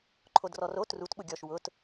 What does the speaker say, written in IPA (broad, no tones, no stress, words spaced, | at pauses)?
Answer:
ǃʰodrɔro trut ɓʊɡʲɔʃ wʊt